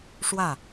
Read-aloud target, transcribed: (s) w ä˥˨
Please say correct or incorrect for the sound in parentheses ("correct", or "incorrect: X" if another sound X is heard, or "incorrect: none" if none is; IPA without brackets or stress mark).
incorrect: ʂ